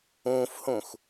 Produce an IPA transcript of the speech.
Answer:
ũːfhũx

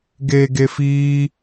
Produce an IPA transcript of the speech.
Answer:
ɡeːɡefiː

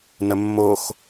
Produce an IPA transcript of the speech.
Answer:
nəmːox

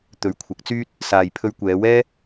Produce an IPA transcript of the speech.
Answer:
t̪ɵ˨˥ɥkʷʰɐ˨˥k̚t͡syː˥t̚ | saː˧j pʰɵ˧ɥkʷɛː˨˧wɛː˥

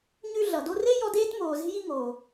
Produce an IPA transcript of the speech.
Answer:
ɲʉ˦ ɮʌ˩do˦re˥ jɔ˦deː˥t moː˨ze̤˥ji˥ ŋoː˩

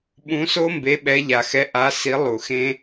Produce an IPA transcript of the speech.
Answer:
ɓũ˨˦so˦mbe˨˦ ɓɛ˨˦ʎa˨˩xɛ˨˦ ʔa˨˦ si˨˦ lˠu˨˩xẽ˦

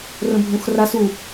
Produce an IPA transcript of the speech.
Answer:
rə̃bʱũxras u

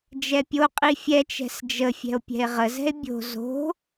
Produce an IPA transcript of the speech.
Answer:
d͡ʒɛpʲoqʼi fʲɛt͡ʃɛ̤s d͡ʒə fʲɛ̤o̯pʲɛ̤e̯ʁəzɛ̤e̯ bʲo̤ zo̤

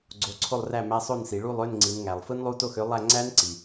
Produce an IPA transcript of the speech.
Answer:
ɡ͡ǀo˨˥ǀʰo˥˨lˠræ˥˨mæ˧˥˧ sˤo˥˨nsi˩˧ ɭu˥˨lˠø˧˥˧n ŋ͡ǀi˩˧nŋæ˩lˠ fɯ˦˥nlˠu˧˥˧to˥˨xø˨˥ lˠæ˥˨ ŋ͡ǀæ˦˥nǀi˩

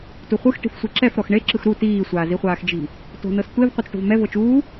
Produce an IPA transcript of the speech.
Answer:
tuχʷɯx ʈi̤fsʷiǁɛf ɾɔxɳe ǁɯxɾu tiː sʷaːziχʷaːxd͡ʒi̤ | to̤nɤstʷev qʷɤt͡sʈo̤vmɛ vɤt͡ʃuː

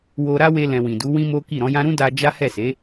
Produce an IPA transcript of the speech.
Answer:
wo˧ɾa˦we˧lɛ̃˨ wĩ˨du˨˦ wĩ˦mo˦ki˦˨ ɾɔ̃˨˦jã˦ ɾũ˦da˧ d͡ʒa˦hɛ˦˨se˨˦

